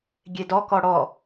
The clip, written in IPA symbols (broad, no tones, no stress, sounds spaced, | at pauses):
ɡʲ e d ɔ k ɔ ɽ ɔ